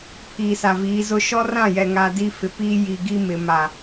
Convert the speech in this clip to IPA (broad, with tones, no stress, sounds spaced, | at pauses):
pʰ iː˨ s a˨ v iː˨˦ z ʊ˦ ʃ ɔ˦ r ã˦˨ j ɛ˨ ŋ a˨ d i˦ f ɪ˨ p i˦ j i˨ ɡ i˦ m ɪ˨ m a˨